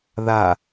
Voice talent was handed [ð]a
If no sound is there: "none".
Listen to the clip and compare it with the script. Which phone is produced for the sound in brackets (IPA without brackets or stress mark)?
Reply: ð